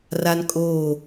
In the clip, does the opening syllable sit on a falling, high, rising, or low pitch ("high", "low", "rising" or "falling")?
high